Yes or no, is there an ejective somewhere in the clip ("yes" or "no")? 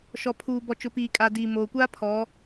yes